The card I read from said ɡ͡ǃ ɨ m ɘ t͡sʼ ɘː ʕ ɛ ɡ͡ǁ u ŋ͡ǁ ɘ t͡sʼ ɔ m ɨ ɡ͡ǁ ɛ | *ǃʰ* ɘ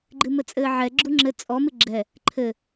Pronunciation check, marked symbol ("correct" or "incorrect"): correct